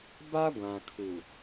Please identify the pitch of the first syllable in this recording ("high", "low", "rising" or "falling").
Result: high